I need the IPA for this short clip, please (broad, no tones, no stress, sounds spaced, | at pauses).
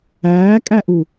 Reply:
æː kʼ æ ʔ u